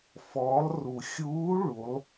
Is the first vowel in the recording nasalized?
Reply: no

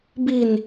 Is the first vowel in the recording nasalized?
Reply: no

